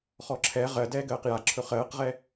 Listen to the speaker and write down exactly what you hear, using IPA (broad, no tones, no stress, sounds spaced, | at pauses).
χ ɔ ǁʰ ɛ ʁ ɜ d ɛː ɡ ɜː q j a ǁʰ ɵ χ ɜː q ʁ ɛ